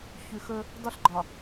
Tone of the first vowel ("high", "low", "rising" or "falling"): low